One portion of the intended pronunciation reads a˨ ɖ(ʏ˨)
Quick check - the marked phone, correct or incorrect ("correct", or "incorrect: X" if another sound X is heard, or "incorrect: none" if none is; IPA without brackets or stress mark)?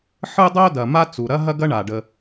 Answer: incorrect: ə˨